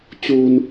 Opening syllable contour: high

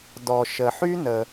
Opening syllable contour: low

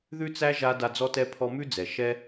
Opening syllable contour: high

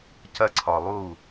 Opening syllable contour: high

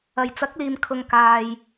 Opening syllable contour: low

